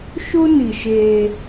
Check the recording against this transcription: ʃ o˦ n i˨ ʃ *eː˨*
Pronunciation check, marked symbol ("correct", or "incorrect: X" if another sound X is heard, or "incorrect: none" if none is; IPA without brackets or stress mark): incorrect: eː˦